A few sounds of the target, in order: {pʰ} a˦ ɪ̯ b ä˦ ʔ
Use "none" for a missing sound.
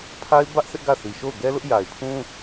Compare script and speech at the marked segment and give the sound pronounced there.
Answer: pʰ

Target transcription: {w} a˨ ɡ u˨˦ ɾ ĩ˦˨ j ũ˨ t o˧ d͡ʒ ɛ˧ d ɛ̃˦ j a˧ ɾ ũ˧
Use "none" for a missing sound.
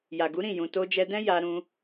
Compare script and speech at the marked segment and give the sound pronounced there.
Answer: j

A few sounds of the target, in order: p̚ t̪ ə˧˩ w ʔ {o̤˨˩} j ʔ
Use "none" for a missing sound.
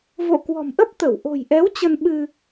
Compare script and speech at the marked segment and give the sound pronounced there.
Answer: o̤˨˩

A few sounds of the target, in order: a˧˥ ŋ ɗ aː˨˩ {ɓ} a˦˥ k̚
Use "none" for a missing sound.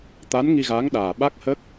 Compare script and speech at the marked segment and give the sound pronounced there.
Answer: ɓ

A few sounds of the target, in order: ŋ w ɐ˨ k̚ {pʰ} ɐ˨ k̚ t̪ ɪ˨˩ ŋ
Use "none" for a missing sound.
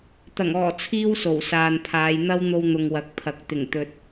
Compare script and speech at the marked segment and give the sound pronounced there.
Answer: pʰ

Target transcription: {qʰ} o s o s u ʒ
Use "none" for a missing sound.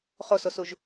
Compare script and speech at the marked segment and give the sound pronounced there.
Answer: χ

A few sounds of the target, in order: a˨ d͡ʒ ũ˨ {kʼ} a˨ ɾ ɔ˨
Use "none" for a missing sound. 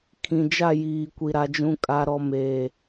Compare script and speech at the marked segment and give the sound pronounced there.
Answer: kʼ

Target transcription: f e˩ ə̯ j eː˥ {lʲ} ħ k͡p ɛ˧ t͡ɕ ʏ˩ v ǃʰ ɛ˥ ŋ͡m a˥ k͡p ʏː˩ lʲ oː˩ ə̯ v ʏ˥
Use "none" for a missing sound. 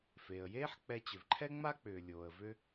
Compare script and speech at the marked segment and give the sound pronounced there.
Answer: none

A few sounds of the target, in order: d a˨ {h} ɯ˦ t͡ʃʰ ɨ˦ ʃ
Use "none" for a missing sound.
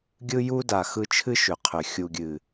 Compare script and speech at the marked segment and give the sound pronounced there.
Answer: x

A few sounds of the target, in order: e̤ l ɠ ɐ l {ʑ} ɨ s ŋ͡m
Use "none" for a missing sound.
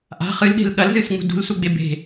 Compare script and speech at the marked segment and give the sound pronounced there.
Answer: z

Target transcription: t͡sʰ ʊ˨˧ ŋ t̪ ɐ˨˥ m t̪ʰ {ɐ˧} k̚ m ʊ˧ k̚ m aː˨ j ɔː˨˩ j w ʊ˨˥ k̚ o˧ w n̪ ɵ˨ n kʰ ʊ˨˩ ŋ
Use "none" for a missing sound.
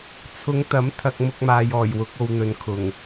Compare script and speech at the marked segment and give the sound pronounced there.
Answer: ɐ˧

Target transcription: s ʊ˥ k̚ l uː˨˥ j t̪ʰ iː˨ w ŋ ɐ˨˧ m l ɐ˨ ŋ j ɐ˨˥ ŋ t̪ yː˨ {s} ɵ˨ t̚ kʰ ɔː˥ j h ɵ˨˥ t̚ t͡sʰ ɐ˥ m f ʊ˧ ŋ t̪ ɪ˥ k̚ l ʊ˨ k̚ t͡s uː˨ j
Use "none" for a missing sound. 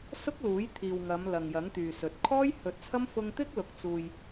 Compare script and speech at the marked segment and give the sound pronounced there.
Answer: s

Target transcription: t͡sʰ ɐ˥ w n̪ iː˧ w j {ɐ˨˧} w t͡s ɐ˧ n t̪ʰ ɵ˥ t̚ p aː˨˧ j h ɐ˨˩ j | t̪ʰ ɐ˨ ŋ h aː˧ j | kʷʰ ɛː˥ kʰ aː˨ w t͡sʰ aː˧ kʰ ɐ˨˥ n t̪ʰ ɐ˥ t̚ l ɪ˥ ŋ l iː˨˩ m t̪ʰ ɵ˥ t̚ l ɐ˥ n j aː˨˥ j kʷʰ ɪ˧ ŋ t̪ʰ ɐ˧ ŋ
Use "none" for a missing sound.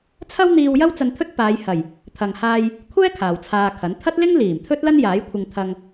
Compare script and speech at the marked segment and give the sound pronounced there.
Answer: ɐ˥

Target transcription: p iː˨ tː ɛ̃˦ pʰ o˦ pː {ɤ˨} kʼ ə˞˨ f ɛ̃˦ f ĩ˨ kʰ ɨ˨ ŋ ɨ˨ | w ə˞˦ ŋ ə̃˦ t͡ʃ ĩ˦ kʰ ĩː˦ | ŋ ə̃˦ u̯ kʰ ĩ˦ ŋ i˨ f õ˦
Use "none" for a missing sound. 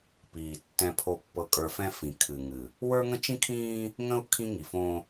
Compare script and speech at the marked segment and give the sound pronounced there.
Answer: ɤ˨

